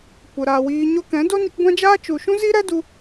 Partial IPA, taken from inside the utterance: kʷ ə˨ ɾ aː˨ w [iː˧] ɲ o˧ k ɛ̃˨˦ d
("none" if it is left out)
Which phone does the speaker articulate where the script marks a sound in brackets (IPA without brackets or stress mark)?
iː˧